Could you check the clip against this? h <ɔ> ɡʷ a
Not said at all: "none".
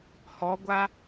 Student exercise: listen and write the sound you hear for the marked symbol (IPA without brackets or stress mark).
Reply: ɔ